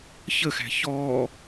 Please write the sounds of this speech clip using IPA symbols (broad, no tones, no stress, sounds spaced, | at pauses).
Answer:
ç ə x æ̤ ç ɔ